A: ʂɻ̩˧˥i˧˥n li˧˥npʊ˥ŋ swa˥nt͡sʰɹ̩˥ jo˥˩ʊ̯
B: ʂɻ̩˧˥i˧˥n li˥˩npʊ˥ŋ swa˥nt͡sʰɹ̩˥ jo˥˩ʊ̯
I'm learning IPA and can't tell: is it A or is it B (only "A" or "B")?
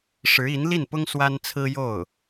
B